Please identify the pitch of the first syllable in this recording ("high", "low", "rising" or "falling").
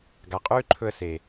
low